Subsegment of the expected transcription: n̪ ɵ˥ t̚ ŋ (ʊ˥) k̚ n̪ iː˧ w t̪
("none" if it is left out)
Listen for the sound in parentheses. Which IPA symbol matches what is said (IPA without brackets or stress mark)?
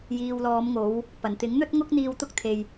ʊ˥